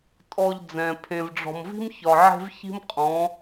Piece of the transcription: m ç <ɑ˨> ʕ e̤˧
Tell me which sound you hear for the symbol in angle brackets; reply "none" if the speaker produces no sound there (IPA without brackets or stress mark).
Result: ɒ˨